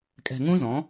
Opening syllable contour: low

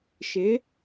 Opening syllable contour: rising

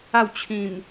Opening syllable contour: falling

